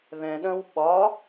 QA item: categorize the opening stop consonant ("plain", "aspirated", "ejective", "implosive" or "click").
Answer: implosive